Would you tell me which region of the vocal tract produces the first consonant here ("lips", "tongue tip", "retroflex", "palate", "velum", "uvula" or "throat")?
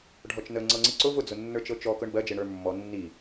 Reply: retroflex